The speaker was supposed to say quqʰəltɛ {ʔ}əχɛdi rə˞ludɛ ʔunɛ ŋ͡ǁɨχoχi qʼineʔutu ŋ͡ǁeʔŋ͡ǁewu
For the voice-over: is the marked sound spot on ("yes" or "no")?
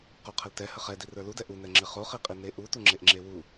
no